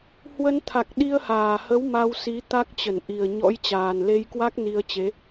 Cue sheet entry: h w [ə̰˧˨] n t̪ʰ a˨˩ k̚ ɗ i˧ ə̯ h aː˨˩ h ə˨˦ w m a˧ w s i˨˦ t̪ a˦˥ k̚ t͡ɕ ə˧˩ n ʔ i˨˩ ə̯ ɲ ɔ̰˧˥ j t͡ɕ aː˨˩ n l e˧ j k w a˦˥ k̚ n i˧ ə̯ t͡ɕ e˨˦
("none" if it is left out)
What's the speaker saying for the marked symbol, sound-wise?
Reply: ə˧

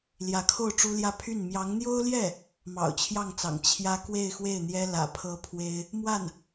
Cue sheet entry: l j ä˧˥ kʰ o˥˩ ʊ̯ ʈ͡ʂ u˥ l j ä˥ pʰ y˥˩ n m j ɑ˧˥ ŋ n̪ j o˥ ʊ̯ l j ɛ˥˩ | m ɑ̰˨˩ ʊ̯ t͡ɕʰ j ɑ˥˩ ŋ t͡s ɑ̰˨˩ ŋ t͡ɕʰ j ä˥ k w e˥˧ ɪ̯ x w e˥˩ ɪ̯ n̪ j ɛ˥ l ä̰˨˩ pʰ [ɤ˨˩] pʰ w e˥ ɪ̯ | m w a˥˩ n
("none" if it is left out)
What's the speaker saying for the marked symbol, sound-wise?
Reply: ɤ˥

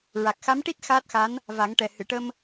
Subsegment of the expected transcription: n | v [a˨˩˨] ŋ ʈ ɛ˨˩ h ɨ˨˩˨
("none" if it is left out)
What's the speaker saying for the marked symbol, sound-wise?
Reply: a˨˩˦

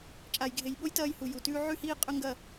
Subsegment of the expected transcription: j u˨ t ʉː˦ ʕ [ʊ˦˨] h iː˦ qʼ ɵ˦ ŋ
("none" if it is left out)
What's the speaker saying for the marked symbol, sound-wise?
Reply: ʉ˦˨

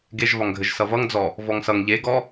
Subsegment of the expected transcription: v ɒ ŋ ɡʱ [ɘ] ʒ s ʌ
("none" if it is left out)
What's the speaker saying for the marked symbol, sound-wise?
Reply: ɘ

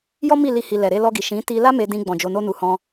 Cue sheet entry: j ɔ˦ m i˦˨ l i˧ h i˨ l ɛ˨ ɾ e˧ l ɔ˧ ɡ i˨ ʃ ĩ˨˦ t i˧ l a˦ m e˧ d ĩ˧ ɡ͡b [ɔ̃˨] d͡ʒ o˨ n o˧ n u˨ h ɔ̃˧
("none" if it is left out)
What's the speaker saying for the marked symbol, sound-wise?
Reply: ɔ̃˨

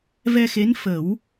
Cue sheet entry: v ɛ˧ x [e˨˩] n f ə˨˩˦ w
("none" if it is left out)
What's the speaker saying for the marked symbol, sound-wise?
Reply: e˧˥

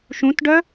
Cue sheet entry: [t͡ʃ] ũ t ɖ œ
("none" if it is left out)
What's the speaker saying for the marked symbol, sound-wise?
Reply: ʃ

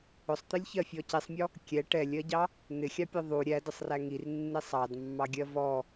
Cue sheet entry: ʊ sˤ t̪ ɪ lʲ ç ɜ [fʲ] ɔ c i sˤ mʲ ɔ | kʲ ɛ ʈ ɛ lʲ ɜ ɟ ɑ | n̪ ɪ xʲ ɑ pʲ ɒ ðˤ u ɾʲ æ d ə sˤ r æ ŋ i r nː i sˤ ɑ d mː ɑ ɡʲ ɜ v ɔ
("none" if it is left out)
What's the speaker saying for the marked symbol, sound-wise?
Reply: fʲ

